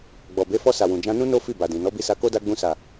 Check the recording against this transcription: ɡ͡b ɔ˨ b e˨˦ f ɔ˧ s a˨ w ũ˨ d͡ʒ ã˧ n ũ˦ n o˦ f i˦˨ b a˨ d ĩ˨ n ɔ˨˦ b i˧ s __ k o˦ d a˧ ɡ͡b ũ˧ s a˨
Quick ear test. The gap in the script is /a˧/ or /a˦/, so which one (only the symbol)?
a˧